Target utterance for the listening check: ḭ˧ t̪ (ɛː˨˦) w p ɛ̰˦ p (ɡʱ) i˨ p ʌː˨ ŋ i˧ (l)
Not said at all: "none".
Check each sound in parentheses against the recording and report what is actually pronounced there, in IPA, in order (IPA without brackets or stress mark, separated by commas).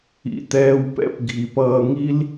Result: ɛː˧, ɡʱ, l